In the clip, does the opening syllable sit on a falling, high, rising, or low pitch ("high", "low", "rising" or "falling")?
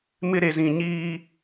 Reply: high